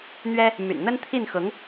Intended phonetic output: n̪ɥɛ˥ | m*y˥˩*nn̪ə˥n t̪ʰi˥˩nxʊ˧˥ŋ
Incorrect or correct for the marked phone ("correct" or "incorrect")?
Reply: incorrect